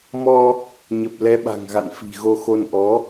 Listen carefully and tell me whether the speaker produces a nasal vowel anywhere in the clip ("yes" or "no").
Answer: no